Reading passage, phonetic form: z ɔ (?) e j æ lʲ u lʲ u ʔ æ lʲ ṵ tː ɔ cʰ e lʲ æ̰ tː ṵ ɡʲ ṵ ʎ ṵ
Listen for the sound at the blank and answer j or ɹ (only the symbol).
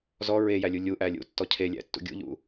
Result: ɹ